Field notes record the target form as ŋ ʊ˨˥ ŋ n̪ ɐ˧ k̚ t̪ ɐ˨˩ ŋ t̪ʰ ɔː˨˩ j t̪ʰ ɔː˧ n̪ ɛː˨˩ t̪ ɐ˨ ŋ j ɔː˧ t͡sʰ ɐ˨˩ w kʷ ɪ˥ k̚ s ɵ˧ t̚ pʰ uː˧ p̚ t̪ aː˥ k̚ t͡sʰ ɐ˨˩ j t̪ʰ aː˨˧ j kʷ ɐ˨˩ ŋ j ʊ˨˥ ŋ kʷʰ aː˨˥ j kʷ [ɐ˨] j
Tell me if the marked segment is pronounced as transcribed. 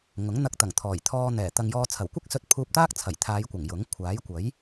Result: no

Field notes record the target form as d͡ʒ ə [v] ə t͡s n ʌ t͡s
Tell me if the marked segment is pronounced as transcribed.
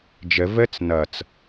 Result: yes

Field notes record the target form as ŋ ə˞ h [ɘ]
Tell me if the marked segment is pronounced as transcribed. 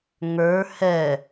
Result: no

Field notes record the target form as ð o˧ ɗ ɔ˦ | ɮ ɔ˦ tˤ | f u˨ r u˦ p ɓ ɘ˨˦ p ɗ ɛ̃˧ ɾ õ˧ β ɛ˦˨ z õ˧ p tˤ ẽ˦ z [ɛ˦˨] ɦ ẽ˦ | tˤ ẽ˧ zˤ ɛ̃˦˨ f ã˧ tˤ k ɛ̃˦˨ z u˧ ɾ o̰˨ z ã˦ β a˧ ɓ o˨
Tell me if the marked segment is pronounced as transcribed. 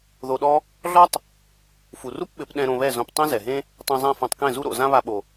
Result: no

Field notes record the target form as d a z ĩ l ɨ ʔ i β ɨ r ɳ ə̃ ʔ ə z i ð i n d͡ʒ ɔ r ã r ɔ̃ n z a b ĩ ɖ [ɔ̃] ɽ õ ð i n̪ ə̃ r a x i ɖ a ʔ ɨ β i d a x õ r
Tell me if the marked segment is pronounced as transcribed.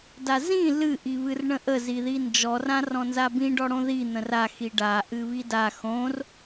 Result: no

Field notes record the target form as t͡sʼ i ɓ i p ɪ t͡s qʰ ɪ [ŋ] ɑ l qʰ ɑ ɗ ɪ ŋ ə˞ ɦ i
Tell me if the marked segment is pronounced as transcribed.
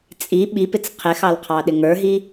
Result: no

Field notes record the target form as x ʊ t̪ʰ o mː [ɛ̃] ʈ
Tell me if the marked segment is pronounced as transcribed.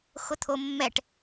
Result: no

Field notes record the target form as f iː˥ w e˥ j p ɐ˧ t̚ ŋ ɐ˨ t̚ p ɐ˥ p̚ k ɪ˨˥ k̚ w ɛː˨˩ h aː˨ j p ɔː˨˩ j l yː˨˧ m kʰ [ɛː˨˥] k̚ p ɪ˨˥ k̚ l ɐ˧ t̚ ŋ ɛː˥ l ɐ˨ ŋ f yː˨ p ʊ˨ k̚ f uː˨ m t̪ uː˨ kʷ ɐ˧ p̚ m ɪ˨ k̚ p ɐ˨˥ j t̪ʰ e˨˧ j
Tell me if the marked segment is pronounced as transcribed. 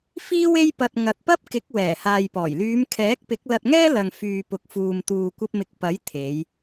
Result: yes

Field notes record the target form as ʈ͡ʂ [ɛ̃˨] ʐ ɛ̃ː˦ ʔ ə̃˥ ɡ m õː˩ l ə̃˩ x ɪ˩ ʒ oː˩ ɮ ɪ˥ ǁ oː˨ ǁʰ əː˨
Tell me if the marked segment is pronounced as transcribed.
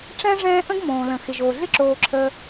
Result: no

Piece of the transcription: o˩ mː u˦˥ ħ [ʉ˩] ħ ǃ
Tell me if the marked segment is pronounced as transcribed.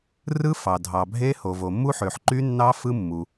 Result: no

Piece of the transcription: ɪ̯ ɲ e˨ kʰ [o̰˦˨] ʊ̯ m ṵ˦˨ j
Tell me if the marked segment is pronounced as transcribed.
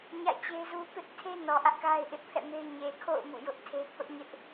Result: yes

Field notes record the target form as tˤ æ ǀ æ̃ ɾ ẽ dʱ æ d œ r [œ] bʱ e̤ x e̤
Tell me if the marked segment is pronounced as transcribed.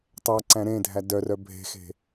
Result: yes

